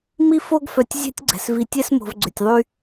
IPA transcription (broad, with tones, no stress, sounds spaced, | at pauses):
m i˦ f o˦ ɡ f œ˨ tʲ zʲ ɛ̤˦ tʲ ɡ͡ǀ ɛ̤˩ s v i˨ tʲ ɛ˥ s m o̤˨ v ɡ͡ǀ ʏ˩ tʲ ðˤ y˦